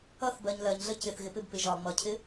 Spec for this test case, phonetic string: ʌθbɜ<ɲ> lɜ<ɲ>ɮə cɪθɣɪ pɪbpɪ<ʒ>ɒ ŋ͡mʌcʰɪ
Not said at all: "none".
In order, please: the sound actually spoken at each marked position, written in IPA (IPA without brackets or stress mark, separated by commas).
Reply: ɲ, ɲ, ʒ